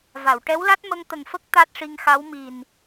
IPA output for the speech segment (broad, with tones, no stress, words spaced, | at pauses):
va˨˩˨wʈɛ˧˥wla˦˥t̚ mə˧ŋt̪ə˨˩ŋfə˦˥k̚ t̪a˦˥t̚ʂi˧ŋxa˧˥wmi˨˩n